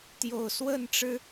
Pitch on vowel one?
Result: low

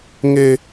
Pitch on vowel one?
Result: high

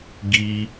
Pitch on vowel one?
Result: high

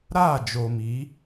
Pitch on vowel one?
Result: falling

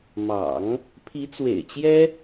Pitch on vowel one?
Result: low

